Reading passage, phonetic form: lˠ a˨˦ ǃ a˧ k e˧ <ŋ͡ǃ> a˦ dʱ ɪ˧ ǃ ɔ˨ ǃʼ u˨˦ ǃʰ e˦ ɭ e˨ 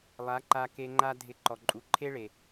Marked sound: correct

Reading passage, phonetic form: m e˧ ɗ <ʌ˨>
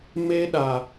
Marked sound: incorrect: a˨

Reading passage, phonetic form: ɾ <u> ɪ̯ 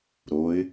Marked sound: incorrect: o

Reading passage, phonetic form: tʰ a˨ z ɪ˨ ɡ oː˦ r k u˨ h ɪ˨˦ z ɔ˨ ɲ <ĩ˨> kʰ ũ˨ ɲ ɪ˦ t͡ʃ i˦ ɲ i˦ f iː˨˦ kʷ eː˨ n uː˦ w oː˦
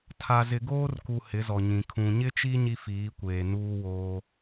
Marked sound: correct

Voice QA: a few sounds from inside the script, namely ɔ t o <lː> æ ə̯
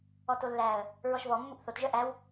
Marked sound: correct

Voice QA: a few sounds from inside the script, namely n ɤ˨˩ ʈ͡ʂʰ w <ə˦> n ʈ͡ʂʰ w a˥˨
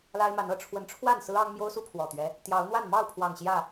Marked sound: incorrect: ə˨˦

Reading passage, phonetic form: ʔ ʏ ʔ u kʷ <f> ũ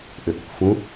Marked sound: correct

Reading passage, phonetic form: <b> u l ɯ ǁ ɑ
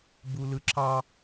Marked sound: correct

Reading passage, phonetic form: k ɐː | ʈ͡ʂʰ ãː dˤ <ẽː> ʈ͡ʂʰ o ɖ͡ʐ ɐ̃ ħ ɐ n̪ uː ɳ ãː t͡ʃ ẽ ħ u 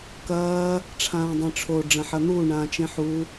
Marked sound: incorrect: ẽ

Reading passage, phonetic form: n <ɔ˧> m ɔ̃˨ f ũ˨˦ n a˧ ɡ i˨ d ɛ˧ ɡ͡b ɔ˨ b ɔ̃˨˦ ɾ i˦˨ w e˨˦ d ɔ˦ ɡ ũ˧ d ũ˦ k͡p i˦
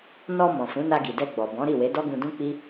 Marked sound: correct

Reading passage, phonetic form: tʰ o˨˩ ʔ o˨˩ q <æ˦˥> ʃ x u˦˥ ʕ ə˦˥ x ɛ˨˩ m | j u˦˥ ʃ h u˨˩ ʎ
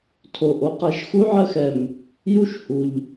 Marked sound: correct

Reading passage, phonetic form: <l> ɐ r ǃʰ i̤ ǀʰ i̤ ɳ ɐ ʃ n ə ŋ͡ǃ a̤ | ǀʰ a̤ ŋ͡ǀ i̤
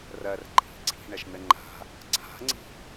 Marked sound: incorrect: r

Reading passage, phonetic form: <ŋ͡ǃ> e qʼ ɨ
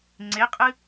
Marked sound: incorrect: ŋ͡ǀ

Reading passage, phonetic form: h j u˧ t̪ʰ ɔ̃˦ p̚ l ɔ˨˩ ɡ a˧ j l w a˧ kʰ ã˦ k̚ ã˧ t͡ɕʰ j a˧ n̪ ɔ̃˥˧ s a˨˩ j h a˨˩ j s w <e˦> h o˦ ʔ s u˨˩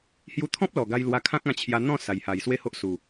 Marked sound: correct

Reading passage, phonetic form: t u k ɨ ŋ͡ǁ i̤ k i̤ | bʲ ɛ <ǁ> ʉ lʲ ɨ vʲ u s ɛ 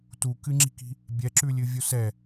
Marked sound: correct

